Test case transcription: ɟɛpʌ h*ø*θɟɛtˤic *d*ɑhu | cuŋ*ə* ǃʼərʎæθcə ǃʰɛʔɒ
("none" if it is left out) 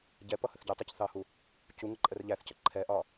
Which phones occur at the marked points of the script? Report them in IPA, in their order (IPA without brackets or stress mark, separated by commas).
ə, θ, ə